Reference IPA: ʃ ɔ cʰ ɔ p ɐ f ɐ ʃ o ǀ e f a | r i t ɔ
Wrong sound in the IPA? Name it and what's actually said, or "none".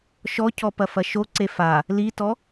r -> l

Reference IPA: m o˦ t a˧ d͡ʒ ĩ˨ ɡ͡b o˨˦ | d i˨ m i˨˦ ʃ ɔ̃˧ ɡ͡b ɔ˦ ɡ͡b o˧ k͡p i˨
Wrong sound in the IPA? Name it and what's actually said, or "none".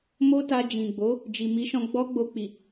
d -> d͡ʒ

